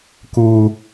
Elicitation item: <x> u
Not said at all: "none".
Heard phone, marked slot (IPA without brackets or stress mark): k